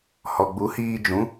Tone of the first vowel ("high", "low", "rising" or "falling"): low